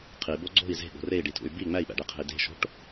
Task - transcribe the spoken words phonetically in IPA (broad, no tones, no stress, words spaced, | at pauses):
qʰibo ɡ͡ǀo̤i̯ ze̤ɠo̤ rei̯ɖitʰṵy̯ bi ŋ͡mæi̯ɓæ̰ɖeqʰe̤i̯ de̤ʃo̤ʈ